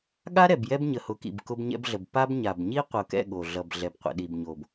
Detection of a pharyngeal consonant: absent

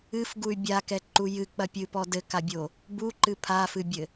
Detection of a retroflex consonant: absent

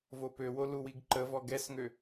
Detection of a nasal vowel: absent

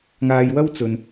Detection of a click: absent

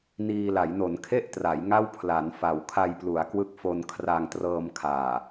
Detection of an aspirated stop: present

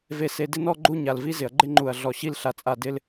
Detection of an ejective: present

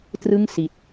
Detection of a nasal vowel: absent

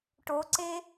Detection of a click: present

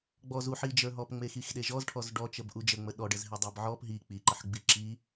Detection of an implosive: present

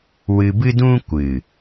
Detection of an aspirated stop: absent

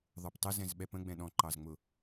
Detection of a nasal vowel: present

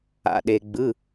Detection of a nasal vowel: absent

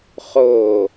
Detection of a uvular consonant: present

